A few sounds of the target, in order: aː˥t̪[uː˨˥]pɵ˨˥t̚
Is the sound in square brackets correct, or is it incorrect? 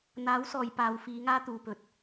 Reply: incorrect: uː˨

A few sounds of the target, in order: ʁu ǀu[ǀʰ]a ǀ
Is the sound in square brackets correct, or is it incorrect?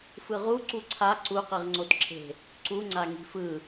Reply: correct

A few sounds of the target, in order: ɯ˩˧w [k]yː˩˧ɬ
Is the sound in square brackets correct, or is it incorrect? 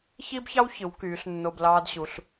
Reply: correct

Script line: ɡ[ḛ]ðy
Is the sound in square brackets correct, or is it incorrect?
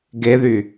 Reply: incorrect: e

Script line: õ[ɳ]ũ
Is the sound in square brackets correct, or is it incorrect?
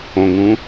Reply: incorrect: ŋ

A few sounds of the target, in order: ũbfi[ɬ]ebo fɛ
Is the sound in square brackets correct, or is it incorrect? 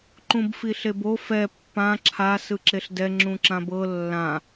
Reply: correct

